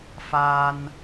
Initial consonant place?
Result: labial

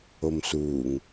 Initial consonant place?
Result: labial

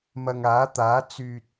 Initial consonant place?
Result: labial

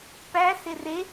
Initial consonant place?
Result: labial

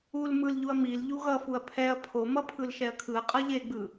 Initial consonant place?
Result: alveolar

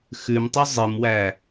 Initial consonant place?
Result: velar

